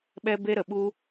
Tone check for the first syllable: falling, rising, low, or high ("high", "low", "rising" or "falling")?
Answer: high